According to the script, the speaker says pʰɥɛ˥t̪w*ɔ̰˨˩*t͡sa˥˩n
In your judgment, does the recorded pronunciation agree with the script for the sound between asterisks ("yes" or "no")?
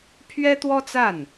no